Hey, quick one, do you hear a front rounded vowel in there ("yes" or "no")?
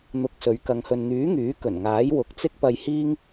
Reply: yes